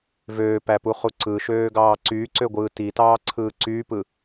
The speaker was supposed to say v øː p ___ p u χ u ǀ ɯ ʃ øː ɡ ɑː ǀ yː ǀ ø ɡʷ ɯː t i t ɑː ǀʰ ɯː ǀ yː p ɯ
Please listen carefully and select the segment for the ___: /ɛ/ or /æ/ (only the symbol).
æ